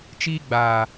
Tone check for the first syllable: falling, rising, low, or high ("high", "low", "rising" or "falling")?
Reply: high